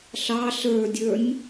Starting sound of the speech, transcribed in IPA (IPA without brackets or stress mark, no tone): ɬ